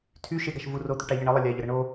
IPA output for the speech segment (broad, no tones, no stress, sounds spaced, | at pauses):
tʰ y ʃ e ɡ a ʃ v u r o t̪ y ʈ a ʎ ə ɳ ə lˠ ə lʲ a ʎ ə ɾ ə ɳ o